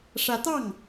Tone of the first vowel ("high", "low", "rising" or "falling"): rising